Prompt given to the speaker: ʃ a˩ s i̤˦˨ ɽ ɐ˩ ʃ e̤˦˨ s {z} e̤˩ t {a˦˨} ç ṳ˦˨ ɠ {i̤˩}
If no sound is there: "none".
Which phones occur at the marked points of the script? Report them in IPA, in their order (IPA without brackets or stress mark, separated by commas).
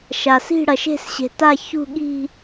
ɕ, a˦˨, i̤˦˨